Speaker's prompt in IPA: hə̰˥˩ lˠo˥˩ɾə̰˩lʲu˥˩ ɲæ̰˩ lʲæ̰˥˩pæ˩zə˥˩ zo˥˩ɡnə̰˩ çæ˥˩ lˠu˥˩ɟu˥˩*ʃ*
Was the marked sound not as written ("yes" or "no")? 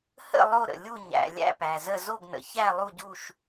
no